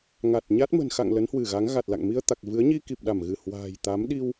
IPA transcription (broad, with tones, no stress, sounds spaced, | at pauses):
ŋ a˨˩ t̚ ɲ a˦˥ t̚ m ə̤˨˩ n x a̰˧˨ ŋ l ə˨˦ n h w ɨ˧˩ ɣ a˨˦ ŋ ɣ a˨˩ t̚ l a̰˧˨ ŋ m i˧ ə̯ t̪ a˨˩ k̚ v ɨ˨˦ ə̯ ɲ i˧ k i˨˩ p̚ ɗ a˧˩ m ɣ ɨ˧˩ h w a̤ː˨˩ j t̪ a˨˦ m ɗ i˧ w